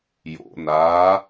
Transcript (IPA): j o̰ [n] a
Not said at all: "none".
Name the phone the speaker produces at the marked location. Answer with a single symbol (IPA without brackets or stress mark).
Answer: n